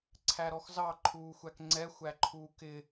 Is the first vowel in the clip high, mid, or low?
low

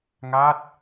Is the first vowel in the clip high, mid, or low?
low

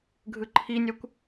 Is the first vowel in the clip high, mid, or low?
high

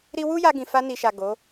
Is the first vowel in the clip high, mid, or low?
high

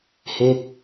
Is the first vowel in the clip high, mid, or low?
mid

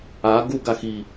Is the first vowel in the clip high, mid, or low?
low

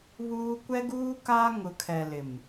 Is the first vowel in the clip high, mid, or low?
high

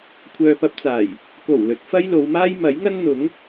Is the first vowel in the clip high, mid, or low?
mid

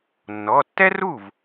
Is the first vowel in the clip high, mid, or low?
mid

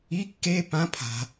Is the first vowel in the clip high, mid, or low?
high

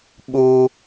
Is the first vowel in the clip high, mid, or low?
high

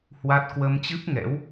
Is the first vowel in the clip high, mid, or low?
low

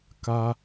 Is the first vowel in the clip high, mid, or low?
low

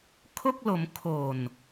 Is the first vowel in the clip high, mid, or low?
mid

